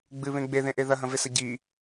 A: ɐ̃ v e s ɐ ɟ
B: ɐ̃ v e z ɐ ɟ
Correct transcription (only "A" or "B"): A